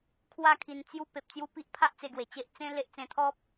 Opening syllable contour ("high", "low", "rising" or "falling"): falling